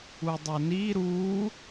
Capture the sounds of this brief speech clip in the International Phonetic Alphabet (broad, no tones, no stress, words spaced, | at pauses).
udˤoni ɾu